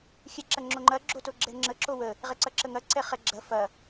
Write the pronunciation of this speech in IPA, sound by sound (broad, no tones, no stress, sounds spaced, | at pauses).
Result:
xʲ ɛ ǁ ɐ ŋ͡ǁ o ŋ͡ǃ ɐ ɡ͡ǁ o t o ɡ͡ǁ ɛ ŋ͡ǁ ə ǁ o w ə | ʁ ɛ ǀ ɐ ǁ ə ŋ ɐ ǀ ɛ χ ɛ ɡ͡ǁ ɐ f ɐ